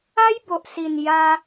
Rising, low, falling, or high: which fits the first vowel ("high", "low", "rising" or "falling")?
high